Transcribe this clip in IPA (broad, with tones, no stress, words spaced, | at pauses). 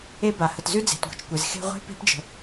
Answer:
e˥ba˩ hə˩tzʉ˥d͡ze̤˩tɡʷɛ̤˩t͡ʃ kʷe˩zxe̤˥ ʁʷe̤˥ pe̤˥pd͡ʒə̤˩